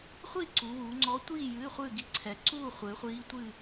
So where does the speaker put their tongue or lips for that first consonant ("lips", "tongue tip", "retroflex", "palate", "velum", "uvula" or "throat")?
uvula